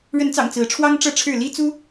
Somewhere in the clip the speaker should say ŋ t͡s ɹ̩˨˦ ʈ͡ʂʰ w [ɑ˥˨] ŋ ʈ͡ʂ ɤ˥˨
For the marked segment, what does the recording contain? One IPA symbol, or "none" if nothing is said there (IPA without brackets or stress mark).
ɑ˦